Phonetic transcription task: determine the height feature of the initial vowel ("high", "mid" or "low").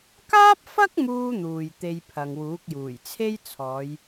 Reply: low